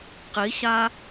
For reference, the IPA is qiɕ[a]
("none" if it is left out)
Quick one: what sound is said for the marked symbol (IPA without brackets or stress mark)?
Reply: a